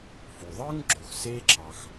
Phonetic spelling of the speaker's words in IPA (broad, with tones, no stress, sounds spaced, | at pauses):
f u˩ ðˤ ɯ˥ ŋ ɡ͡ǁ o˩ x s e˧ ǁʰ ɑ˩ x